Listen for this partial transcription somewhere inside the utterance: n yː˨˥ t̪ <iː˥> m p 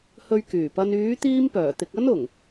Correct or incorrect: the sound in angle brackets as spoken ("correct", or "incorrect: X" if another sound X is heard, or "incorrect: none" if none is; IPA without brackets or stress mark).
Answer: correct